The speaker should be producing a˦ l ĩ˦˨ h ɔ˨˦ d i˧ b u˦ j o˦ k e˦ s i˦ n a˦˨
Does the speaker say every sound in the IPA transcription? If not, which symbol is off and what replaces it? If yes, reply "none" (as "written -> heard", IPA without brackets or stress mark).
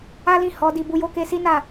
none